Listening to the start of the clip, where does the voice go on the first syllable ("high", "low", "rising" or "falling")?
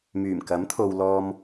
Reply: low